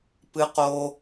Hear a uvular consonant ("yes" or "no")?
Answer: yes